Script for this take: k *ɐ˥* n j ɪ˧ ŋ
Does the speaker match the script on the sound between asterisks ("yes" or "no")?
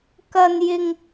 no